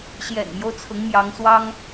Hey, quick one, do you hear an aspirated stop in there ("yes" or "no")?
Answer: yes